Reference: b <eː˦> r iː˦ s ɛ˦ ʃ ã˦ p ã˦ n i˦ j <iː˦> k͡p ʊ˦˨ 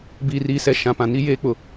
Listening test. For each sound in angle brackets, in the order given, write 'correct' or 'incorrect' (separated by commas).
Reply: incorrect, incorrect